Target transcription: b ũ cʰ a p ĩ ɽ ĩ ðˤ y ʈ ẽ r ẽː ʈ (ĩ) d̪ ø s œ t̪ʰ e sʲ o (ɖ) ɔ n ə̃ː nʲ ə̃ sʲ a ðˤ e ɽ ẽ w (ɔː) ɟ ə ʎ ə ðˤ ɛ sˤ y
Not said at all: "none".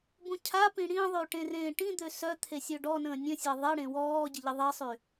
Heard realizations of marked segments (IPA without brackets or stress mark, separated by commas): ĩ, ɖ, ɔː